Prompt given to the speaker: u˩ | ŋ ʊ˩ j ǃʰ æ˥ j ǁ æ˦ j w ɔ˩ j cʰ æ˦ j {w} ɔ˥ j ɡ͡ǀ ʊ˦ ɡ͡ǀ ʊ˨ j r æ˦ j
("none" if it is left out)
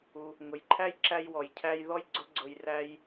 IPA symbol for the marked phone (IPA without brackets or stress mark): ð